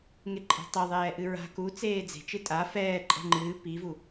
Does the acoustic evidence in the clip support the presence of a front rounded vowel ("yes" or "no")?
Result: no